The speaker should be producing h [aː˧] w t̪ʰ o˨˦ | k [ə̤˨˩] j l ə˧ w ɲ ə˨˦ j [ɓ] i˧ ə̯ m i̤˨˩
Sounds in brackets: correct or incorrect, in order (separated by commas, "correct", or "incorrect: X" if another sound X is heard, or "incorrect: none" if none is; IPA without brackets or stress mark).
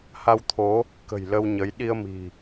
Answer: incorrect: a˧, correct, incorrect: ɗ